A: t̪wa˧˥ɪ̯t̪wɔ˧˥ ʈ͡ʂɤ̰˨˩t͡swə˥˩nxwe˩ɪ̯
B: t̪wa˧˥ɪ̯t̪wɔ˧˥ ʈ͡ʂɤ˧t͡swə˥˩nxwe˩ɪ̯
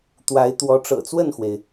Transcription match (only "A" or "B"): A